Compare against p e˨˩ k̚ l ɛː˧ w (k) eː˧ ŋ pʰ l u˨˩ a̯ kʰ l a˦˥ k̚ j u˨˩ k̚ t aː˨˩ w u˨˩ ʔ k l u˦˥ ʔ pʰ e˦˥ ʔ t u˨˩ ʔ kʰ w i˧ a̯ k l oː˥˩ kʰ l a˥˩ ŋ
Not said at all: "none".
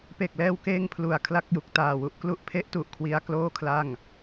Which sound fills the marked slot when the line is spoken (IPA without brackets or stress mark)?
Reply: k